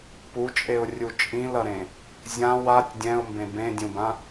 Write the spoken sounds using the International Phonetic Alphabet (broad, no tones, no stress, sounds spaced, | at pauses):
p u t͡ʃʼ e ʊ̯ rʲ u t͡ʃʼ ĩ l ʌ ɾ ẽ | zʲ ã w a tʲ dʲ ɛ̃ ʊ̯ m b ẽ b ẽ dʲ ũ b ã